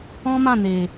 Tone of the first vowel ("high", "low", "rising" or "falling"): high